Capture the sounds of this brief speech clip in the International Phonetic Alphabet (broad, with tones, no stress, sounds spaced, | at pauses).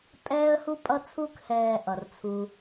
pʼ ɛː˧ ə̯ h u˧ pʼ ʌ˧ t͡sʰ u˧ k h ɛː˨ ʔ ʌ˨ r t͡sʰ u˧